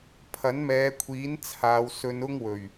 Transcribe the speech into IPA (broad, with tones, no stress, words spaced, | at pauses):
pʰɐ˨˥nmɛː˨˧kʷʰiː˨˥n t͡sʰaː˨˧wsɵ˧n ʊ˥ŋwɵ˨˩ɥ